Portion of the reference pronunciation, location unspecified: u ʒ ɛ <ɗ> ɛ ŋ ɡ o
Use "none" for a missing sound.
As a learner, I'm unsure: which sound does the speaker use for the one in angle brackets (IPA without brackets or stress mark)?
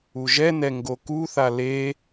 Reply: n